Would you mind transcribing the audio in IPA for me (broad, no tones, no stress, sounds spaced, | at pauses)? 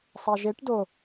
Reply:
sˤ a ʒ e ʈ d o